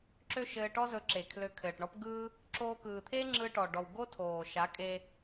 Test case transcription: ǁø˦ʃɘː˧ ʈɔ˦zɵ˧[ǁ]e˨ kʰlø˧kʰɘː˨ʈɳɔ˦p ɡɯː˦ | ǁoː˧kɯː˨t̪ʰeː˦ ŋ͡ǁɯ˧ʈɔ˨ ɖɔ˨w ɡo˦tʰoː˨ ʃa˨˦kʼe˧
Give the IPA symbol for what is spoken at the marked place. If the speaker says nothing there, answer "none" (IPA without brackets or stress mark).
ǁ